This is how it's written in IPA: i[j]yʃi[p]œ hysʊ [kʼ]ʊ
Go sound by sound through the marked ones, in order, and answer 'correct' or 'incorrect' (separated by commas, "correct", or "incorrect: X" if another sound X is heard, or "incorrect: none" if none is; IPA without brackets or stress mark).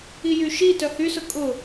correct, incorrect: t, correct